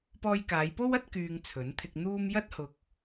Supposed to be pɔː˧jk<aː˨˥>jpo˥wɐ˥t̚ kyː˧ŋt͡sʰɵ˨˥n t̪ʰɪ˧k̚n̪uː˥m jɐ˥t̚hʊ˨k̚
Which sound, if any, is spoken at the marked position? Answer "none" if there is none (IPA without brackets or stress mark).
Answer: aː˨˧